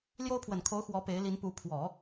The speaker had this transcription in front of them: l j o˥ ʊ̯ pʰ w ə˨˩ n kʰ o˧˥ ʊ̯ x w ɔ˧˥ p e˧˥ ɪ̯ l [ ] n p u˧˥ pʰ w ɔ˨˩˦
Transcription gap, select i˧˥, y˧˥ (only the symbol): i˧˥